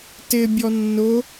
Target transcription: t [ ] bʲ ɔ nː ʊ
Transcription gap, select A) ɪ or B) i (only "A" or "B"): A